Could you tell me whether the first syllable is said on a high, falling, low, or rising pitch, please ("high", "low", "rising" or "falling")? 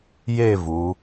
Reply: falling